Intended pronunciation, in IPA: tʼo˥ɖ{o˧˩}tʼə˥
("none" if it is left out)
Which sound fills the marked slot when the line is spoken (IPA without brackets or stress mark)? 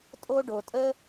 o˧